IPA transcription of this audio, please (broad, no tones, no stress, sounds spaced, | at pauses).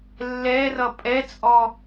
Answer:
lː ɛ r ʌ pʼ ɛ t͡sʼ ɔ